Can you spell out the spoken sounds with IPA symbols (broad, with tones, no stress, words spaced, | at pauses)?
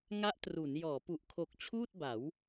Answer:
ŋa˦˥ʔtru˩˦n jɔː˩˦pu˨˩ʔkʰo˨˩k̚ t͡ɕʰuː˥˩t̚ba˩˦w